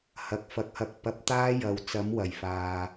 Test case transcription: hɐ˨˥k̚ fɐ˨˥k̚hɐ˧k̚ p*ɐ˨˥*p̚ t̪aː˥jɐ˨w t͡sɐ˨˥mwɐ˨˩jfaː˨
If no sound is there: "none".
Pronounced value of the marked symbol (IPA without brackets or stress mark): ɐ˨˥